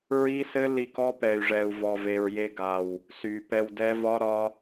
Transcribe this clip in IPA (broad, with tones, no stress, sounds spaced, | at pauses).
ɹ i˦ s ɘ˦ l i˧ k ɔ˦ p ɛ˨ y̯ ʐ ɛ˨ u̯ v ɔ˨ v e˨ ɹ j e˧ ɡ a˨ w | s y˨ p ɛ˧ w d ɛ˦ v ɒ˦ ɾ ɒ˦